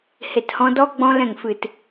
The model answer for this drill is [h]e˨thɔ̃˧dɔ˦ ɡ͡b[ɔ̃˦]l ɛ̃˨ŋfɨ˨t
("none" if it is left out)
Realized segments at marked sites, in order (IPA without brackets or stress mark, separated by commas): h, ɔ̃˦